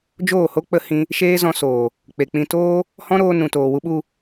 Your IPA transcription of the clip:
d͡ʒoː˦˨ho˦k͡pə˧hĩ˧ | ʃeː˦zɔ̃˧soː˨ | k͡pe˨k͡pĩ˧toː˦ | hɔ̃˦ɾoː˧ nũ˨toː˨wu˧ɓu˧

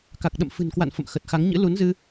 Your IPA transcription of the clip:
ka˨˩k̚ɗə̰˧˨mfɨ̤˨˩nkwa̰˧˨n fə̰˧˨m xə˨˩t̚xa˨˦ŋɲɨ̰˧˥ lu˨˦nzɨ˧

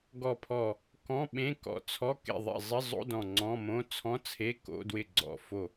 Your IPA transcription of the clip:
ɡɔ˧˩pʰɔ˧˩ | kɔ̃˧˥˧ɓẽ˧˥˧ kɔ̰˧˩t͡sʰɔ˧˥˧ kḛ˧˩ðˤḛ˧˩ zˤɪ˧˥˧zˤo̰˧˥˧ dɔ̃˧˩ŋ͡ǀɔ̃˧˥˧mõ˧˥˧ t͡sʰɔ̃˧˥˧t͡sʰe˧˥˧ko̰˧˥˧dwɪ˧˩ ɡ͡ǀɔ̰˧˩fo˧˩

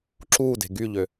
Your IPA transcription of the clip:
ǁuːde̤ ɡyʎø

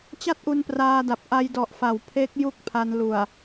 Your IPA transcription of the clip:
t͡ɕa˥˩t̚ʔu˧npraː˧da˨˩p̚ ʔa˧jdɔ˨˩ʔfa˩˦w pʰe˦˥k̚ ju˥˩k̚pʰa˧n lu˨˩a̯

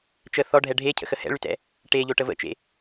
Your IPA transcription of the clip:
t͡ʃə θɔɖʱɛ ɖʱecʰə̰xə hɛ̰ɭytɛ̰ | ʈeʎoʈə və̰t͡ʃḛ

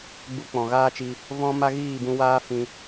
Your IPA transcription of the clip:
ɡ͡bu˧k͡pɔ̃˨ɣaː˦t͡ʃi˧ | vɔ̃˦ ma˦ɣiː˦˨bũ˧waː˦ fĩ˧

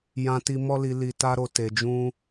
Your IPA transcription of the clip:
jã˧ti˧ mɔ˦li˧ li˧ta˦ɾo˧ te˧d͡ʒũ˦

